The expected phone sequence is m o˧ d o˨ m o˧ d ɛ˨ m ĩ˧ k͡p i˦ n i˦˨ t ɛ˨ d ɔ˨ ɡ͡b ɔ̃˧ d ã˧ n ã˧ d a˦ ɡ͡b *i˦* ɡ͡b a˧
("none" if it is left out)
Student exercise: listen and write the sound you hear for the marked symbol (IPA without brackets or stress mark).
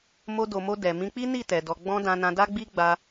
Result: i˦